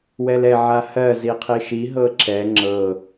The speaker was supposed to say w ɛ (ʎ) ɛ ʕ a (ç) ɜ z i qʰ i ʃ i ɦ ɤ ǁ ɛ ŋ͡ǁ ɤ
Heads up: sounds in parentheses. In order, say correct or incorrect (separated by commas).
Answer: incorrect, incorrect